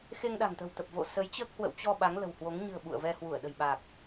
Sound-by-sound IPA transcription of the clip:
x e˧ ŋ ɗ a̤˨˩ ŋ t̪ ə̤˨˩ w t̪ ə˨˩ p̚ v o̰˧˨ s ə˨˦ j t͡ɕ əː˦˥ k̚ h w ə̰˧˨ w t͡ɕ ɔ˧ ɓ a˨˦ ŋ l ə̤˨˩ w h w o˨˦ ŋ ɲ ɨ̤˨˩ ə̯ ɓ ṵ˧˨ ə̯ v ɛ˧ h w u˧˩ ə̯ ɗ ə̤˨˩ j ɓ aː˨˩ k̚

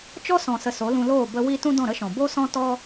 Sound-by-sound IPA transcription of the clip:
t͡ʃ ɔ˦ s ɔ̃˨ s ə˨ s o˨˦ l ũ˧ l oː˦˨ b ə˧ w i˦ t ũ˦ d ɔ̃˦˨ ɾ ə˦ ʃ ɔ̃˨ b o˦ s ɔ̃˦ t ɔ˦

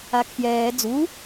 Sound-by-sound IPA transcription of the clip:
a kʰ j ɛː d͡z u

